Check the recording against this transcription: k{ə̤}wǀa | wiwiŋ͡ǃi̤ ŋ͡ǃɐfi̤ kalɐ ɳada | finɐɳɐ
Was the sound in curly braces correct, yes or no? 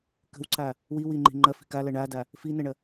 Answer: yes